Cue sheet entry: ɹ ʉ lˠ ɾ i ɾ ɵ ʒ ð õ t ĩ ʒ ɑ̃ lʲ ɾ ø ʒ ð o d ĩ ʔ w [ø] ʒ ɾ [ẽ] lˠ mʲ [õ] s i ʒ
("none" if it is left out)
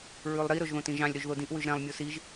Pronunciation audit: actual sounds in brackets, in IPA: ʉ, ɛ̃, o

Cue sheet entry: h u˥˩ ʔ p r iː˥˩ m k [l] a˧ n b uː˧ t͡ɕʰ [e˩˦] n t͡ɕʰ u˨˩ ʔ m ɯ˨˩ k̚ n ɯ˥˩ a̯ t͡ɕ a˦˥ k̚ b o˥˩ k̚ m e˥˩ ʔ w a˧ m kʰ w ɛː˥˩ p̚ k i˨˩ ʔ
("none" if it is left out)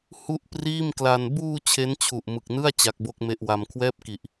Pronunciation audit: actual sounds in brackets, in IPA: l, e˦˥

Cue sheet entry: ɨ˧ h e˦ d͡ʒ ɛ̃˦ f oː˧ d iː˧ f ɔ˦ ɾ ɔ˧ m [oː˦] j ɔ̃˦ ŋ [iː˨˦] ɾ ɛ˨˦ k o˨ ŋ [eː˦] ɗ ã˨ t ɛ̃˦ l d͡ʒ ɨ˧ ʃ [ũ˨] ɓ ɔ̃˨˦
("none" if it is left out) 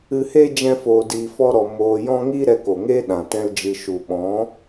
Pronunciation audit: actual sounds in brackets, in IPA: oː˧, iː˦, eː˦, u˨

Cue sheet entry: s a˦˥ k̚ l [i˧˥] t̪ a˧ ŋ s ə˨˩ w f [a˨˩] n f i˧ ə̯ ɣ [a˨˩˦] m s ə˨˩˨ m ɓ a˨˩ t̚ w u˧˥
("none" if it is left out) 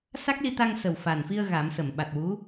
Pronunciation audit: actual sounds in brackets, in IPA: i˧, a˨˩, a˨˩˦

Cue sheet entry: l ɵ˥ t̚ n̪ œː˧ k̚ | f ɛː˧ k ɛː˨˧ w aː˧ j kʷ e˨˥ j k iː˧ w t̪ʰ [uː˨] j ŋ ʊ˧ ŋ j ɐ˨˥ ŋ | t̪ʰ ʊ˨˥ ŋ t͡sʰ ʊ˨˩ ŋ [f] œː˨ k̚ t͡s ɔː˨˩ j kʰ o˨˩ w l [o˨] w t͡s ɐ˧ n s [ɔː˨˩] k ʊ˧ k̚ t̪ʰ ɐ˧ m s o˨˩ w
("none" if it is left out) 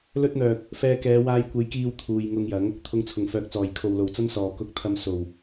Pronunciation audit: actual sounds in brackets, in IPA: uː˨, f, o˨˩, ɔː˨˩

